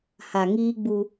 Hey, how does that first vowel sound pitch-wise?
low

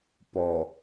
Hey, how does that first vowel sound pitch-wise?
low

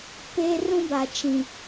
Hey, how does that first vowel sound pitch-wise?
high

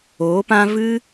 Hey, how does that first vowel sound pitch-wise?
rising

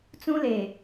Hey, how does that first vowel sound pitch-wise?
high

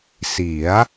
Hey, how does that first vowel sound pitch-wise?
rising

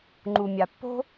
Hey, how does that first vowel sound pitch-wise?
low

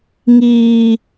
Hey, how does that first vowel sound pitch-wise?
high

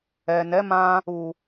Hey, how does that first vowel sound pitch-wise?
low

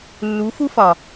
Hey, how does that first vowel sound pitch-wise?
rising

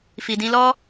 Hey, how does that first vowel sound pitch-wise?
low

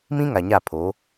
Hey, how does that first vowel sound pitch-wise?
high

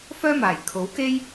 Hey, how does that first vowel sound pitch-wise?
high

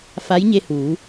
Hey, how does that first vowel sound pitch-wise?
rising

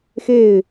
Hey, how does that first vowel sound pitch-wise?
falling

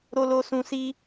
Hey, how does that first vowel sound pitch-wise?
low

